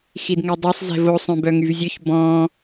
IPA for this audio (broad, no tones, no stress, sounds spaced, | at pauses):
x i d ŋ ɛ dˤ a sˤ z ɛ̤ v o sˤ œ̃ b œ ŋ y v zʲ ø ç b ɔ̃